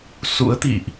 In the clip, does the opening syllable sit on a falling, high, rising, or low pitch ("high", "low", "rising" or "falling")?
rising